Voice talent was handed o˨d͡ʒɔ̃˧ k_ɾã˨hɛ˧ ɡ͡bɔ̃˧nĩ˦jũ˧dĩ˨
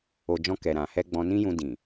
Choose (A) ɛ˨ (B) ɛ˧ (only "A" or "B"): A